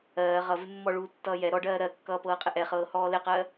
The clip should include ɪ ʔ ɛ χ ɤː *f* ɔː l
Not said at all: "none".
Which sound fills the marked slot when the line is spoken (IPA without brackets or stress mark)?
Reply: h